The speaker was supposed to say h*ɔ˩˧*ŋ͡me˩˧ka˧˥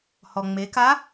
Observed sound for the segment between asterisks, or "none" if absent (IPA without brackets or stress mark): ɔ˩